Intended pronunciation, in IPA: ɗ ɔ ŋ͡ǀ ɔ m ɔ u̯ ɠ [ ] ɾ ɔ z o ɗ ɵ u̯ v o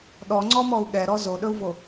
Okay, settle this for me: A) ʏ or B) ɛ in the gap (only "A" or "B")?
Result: B